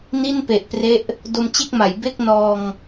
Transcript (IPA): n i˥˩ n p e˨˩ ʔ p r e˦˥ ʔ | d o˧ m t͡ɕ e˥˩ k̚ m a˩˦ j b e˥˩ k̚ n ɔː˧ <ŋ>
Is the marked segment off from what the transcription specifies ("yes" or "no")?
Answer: no